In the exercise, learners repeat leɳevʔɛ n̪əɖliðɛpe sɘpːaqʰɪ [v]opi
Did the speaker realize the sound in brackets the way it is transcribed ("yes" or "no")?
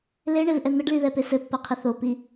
no